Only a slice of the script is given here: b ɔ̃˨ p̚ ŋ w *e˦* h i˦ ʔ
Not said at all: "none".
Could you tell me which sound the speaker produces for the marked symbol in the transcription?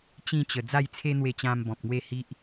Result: e˥˧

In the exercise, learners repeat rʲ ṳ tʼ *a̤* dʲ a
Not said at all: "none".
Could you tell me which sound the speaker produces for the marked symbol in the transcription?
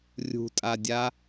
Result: a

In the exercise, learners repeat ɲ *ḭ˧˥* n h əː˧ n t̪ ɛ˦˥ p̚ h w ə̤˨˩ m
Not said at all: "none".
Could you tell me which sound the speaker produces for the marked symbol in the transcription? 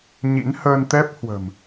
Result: ḭ˧˥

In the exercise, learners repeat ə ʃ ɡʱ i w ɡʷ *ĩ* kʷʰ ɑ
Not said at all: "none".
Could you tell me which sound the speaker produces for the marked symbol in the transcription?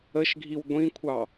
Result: ĩ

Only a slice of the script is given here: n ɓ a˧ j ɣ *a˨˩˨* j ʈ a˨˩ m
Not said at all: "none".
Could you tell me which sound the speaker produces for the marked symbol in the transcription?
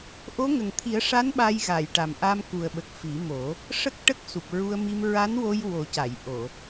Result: a˨˩˨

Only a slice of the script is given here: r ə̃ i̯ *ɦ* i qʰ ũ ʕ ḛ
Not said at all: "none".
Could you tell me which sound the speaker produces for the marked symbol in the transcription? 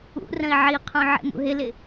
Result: ʕ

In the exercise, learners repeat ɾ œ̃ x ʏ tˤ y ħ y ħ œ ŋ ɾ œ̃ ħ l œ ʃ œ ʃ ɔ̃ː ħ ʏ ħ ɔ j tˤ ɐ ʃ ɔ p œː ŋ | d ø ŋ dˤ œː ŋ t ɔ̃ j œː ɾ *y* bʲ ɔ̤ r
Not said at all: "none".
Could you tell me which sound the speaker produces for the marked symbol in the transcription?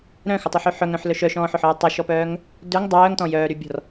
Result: y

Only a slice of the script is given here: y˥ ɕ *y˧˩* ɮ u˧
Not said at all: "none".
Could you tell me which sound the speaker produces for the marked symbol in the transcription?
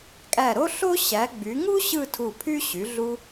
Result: y˩˧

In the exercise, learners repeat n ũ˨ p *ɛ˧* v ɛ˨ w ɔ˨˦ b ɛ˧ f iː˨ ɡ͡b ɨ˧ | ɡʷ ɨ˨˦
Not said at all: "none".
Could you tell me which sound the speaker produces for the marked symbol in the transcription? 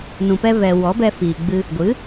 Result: ɛ˧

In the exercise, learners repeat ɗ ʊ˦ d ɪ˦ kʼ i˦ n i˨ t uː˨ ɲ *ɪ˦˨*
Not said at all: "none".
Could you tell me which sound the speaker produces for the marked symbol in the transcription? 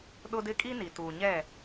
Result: ɛ˦˨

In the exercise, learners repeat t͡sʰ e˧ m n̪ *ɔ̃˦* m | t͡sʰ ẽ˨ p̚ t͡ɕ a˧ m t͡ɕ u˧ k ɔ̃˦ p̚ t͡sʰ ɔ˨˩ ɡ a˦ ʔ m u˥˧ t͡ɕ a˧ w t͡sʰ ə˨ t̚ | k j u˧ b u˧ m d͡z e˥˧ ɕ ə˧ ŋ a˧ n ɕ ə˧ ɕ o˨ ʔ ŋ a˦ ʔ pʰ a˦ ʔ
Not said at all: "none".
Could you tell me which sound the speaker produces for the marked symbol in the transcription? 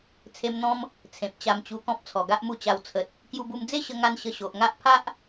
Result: ɔ̃˦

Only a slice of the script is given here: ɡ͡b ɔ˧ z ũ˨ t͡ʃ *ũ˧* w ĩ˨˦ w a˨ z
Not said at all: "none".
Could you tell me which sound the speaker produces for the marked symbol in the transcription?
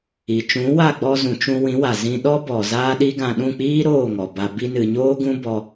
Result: ũ˧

